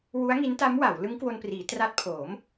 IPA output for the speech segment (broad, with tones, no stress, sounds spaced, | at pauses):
w u˦˥ a̯ ŋ i˦˥ n t a˦˥ m w a˩˦ w l ɯ˦˥ ŋ k w o˧ n p r iː˩˦ t r a˦˥ t̚ pʰ oː˩˦ m